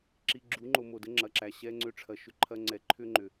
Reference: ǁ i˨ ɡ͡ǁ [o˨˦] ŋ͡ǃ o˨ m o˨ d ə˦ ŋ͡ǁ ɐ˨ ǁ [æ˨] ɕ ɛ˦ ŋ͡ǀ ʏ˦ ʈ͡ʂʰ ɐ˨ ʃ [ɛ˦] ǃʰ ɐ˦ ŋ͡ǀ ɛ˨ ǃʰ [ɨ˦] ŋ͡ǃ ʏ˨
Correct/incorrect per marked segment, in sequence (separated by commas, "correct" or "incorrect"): incorrect, correct, incorrect, incorrect